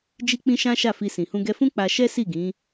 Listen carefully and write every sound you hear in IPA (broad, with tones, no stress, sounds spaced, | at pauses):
d͡ʒ i˦ k͡p ĩ˦ ʃ ã˦ ʃ a˦˨ f i˧ s ĩ˨ h ũ˧ ɡ ɛ˧ f ũ˦ k͡p a˧ ʃ ɛ˦ s i˦˨ ɡ ĩ˨˦